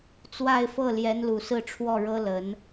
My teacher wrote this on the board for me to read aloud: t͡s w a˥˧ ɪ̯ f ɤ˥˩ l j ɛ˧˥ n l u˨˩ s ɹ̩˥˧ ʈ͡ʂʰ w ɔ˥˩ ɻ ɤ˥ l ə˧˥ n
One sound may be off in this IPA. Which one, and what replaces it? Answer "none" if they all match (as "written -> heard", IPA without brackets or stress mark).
none